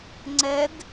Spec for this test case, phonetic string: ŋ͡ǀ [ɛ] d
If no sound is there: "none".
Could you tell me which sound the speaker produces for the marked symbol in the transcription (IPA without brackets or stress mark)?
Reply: ɛ